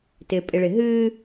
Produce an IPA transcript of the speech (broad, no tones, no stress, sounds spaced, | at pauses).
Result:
t ɪ pʼ ɪ ɭ ɪ ɦ ɨ